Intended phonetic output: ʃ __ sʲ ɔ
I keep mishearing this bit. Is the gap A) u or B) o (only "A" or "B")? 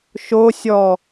B